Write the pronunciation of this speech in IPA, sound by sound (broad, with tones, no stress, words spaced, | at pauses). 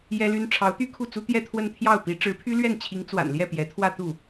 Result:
jɛ˥ly˥n ʈ͡ʂʰɑ˧˥ʊ̯t̪y˥ kʰu˥˩t͡su˥ t̪jɛ˥˧t̪ʰwə˥˧nt̪ʰjɑ˥˩ʊ̯pi˧˥ ʈ͡ʂɻ̩˧˥pʰy˥lɥɛ˥˩nt͡ɕʰi˧˥ŋ t͡swa̰˨˩nljɛ˥˩ pjɛ˧˥t̪ʰwä˥˧t̪u˥˩